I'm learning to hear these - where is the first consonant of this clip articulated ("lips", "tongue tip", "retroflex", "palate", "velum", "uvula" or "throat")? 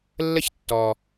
tongue tip